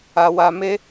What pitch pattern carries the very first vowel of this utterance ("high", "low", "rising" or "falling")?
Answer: high